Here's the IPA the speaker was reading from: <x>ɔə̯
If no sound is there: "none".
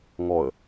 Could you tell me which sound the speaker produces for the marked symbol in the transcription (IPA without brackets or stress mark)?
ŋ